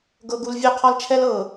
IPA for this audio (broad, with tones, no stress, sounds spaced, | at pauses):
ɡ ɤ˦ ɡ u˦ l vʲ ø˦ qʰ ɒ˦ l t͡ʃʰ ɛ˦ l ɤ˨